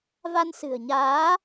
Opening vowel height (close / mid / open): open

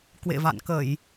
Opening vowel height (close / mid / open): mid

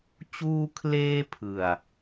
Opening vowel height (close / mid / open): close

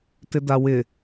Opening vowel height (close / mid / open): close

